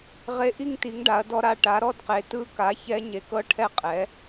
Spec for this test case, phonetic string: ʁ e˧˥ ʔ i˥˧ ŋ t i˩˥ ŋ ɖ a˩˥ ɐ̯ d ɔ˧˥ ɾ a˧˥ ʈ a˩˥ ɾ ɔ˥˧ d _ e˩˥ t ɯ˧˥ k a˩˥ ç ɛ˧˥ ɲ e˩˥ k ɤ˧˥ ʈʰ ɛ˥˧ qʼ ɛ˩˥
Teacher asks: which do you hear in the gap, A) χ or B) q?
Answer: B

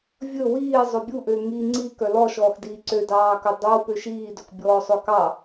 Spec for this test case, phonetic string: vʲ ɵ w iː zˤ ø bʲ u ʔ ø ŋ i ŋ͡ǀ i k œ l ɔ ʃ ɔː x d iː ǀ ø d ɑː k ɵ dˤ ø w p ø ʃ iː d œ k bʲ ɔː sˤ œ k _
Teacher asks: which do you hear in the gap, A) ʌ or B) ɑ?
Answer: B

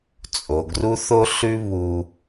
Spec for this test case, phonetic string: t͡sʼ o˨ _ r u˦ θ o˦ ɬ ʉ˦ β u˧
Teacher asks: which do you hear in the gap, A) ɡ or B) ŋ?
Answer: A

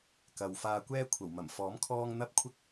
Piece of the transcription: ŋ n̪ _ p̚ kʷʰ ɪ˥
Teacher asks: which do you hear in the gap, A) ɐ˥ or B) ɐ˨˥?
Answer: A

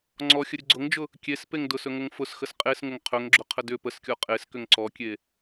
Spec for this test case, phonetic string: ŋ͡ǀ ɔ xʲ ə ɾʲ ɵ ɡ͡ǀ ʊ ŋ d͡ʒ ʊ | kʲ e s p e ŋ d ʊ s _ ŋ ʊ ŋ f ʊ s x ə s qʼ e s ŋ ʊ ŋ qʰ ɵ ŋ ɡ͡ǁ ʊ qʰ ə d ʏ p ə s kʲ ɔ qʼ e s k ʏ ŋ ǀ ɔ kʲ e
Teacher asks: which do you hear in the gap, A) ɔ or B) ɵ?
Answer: B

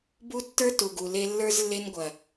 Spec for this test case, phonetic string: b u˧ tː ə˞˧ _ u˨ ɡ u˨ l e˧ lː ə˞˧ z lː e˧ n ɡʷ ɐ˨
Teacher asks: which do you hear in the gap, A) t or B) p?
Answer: A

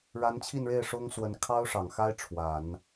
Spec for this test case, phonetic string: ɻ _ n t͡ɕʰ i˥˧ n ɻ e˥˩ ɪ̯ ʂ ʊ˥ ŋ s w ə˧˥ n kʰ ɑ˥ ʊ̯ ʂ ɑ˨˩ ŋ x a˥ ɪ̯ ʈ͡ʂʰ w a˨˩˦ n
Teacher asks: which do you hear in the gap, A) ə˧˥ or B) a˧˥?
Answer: B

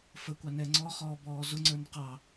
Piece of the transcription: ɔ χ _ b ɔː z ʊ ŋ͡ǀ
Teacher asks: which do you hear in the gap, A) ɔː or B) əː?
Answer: A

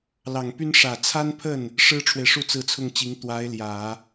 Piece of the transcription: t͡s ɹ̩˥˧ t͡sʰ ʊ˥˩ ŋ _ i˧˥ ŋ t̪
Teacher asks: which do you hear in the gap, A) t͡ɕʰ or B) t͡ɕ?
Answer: B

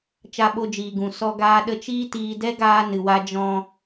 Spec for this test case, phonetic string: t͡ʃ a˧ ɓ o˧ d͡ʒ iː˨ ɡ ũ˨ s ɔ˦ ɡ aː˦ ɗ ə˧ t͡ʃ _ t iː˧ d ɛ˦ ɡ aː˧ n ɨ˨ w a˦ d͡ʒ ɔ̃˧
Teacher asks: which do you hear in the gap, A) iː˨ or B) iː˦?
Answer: B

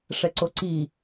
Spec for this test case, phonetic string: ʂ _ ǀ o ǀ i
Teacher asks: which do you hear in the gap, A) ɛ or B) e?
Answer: A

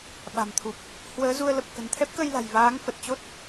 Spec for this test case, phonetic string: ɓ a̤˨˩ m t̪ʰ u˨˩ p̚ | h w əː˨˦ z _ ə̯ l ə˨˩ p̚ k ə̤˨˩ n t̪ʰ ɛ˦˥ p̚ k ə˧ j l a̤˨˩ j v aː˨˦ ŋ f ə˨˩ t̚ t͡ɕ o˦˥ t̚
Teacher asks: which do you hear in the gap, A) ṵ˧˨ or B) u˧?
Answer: B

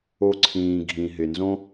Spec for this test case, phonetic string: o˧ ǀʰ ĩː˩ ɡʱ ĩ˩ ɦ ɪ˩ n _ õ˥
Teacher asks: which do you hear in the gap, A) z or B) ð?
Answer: A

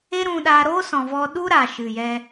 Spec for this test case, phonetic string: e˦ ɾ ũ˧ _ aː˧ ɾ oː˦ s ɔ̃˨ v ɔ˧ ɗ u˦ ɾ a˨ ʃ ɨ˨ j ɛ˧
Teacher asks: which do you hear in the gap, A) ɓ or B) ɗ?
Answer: B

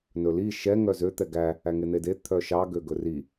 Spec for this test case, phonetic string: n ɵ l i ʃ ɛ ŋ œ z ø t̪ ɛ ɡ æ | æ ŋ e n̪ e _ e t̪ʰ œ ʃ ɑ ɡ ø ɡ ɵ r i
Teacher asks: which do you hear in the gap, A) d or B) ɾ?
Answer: A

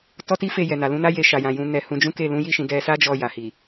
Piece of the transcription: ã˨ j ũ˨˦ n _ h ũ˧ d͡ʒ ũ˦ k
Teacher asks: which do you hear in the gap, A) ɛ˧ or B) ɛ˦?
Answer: A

